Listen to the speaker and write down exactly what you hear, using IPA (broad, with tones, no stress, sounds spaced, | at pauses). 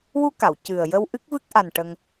w u˧ k a˨˩˨ w c ɨ˨˩ ə̯ j ə˧ w ʔ ɨ˦˥ k̚ v ɨ˦˥ k̚ ʔ a˨˩ n ʈ ə˧ ŋ